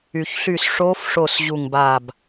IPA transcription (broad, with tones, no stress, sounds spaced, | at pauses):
y˩ ç ɬ y˧˩ s ʂ o˧˥ f ʂ o˧˩ s ʑ u˧˩ ŋ b a˧˩ b